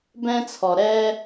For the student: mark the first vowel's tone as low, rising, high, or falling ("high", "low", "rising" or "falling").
high